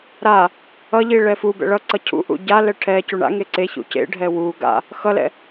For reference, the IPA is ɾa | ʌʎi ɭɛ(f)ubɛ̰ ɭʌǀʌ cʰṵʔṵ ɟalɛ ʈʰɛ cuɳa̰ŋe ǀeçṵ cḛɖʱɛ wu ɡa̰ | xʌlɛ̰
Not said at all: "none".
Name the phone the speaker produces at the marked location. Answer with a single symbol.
f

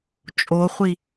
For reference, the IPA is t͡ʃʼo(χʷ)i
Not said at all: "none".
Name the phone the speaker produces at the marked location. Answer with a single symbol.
χʷ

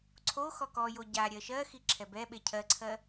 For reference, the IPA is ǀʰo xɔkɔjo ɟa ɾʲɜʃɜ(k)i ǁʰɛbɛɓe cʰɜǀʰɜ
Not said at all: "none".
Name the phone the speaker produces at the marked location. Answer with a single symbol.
x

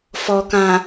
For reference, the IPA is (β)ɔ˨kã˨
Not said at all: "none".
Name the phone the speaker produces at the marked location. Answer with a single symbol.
f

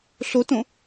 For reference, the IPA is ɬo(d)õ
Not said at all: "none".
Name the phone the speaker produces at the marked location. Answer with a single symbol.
t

